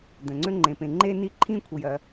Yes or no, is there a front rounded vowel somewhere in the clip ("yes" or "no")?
yes